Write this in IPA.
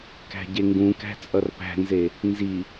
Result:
k æ̤ ɟ e ŋ ɡ ũ k æ̤ t͡sʼ ʌ r p æ̤ n z e | n z i

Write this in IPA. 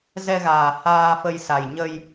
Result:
z ɛ˧ ɣ aː˨˩ h aː˧ f ə˧ j s a˨˩ j ɲ ə˧ j

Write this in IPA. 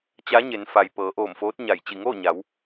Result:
t͡ɕ a˧˥ ɲ e˩˧ n f a˩ j p ɤː˩˧ ʔ oː˧˩ m f oː˧˥ t̚ ɲ a˧˩ j t͡ɕ i˧˩ ŋ oː˥˨ ɲ a˩˧ w

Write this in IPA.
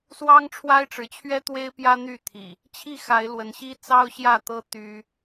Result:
s w ɑ˦ ŋ ʈ͡ʂʰ w a˦ ɪ̯ ʈ͡ʂ ɻ̩˨˦ t͡ɕʰ ɥ ɛ˦ t̪ w e˦ ɪ̯ p j ä˦ n̪ y˥˨ t̪ʰ ḭ˨˩ | t͡ɕʰ i˥˨ x a˨˦ ɪ̯ l w ə˨˦ n ɕ i˦ t͡s ɑ˦ ʊ̯ ɕ j ä˥˨ t̪ ɤ˦ t̪ y˦

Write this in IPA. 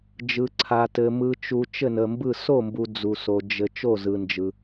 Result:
d͡ʒ ɯ˨ ǀʰ a˨ t ɘ˨ m ɯ˨ t͡ʃ u˨ t͡ʃ ɘ˥˩ n ə˨ m b ɯ˥˩ s o˥˩ m b u˨ d͡z u˨ s o˨ d͡ʒ ɘ˨ t͡ʃ o˥˩ z ɯ˨ n d͡ʒ ɯ˨

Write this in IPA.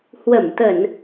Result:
h w ə˧˩ m t̪ ə˧˩˨ n

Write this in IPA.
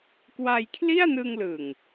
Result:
k w a˧ j kʰ l i˥˩ a̯ n ɯ˧ ŋ l ɯ˨˩ ŋ

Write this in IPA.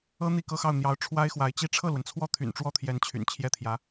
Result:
ɤ˥ n̪ i˥˩ k ɤ˥ x ɑ˥˩ ʊ̯ n̪ j ɑ˧˥ ʊ̯ ʈ͡ʂʰ w a˥ ɪ̯ x w a˧˥ ɪ̯ t͡ɕ i˥˧ ʈ͡ʂʰ ɤ˥˩ l w ə˩ n t͡sʰ w ɔ˥˩ t̪ʰ y̰˨˩ n ʈ͡ʂ w ɔ˥˩ t̪ʰ j ɛ˧˥ n t͡ɕʰ y̰˨˩ n t͡ɕʰ j ɛ˥˩ t̪ʰ j ä˧˥

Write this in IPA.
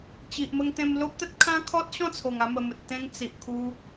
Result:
t͡ɕ i˨ ʔ m ə˧ ŋ t̪ ẽ˧ m l o˦ p̚ t̪ ə˦ t̚ kʰ ã˦ kʰ ɔ˦ t̚ ɕ ɔ̃˥˧ t͡sʰ o˨˩ ŋ a˧ m ə˨˩ m ə˨ t̚ t̪ ẽ˧ ŋ t͡s i˨ ʔ kʰ u˧

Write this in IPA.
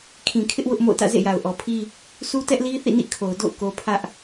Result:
kʰ ĩ˨ kʰ ɪ˦ ʔ w ʊ˦ ʔ m o̰˦˨ ʊ̯ t ä̰˦˨ z ḛ˦˨ j a˨ ʊ̯ ʔ ɔ˨ pʰ i˦ | sʰ u˦ t ɛ˦ ʔ l i˦ θ ḭ˦˨ n ḭ˦˨ kʰ o˨ ʊ̯ d o̰˦˨ ʊ̯ k o˦ pʰ ä˦ ʔ

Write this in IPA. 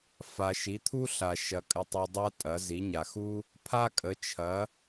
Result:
f a˨ ʃ i˩˥ t̪ʰ u˥ ɬ a˨ ʃ ɐ˨ kʼ ə˨ tˤ u˨ dˤ a˥ tʼ ɐ˩˥ z i˩˥ ɲ a˨ x u˥ | pʰ a˥ kʼ ə˩˥ t͡ʃʰ ɐ˩˥

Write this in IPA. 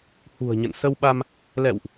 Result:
h ṳ˨˩ ə̯ ɲ ə̰˧˨ n s ə˧ w ɓ a˧ m | l ɛ̰˧˨ w ʔ

